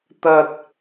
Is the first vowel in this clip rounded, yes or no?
no